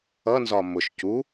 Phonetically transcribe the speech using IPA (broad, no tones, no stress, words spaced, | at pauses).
ʌnzɒ mʊʃ cu